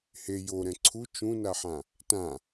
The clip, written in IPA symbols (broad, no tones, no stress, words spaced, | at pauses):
he joɾɛ̃ ǀʰu t͡ʃũnaħã | tã